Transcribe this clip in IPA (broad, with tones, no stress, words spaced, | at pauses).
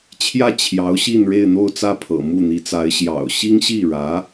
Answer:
t͡ɕʰjä˥˩ t͡ɕʰjɑ˧˥ʊ̯ɕi˥˧n ɻe˥˧ɪ̯n̪o˥˧ʊ̯t͡sä˥˩pʰɤ̰˨˩ mu˥˩n̪i˧˥t͡sa˧˥ɪ̯ ɕjɑ̰˨˩ʊ̯ ɕi˥ŋɕi˥˩ɻä˧˥